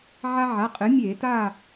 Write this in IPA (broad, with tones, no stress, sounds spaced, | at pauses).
ʕ a˦ ʕ a˩˧˩ qʼ ɨ˩˥ mʲ eː˧˩˧ t aː˦˨